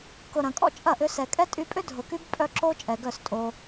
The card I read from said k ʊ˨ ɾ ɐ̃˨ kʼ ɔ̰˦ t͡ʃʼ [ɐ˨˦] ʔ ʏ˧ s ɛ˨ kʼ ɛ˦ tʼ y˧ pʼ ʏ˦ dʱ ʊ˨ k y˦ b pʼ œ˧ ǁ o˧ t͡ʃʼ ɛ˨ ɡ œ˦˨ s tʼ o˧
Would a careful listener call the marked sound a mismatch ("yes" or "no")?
yes